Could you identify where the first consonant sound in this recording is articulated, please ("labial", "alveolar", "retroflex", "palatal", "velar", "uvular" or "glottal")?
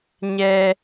palatal